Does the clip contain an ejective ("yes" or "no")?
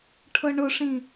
no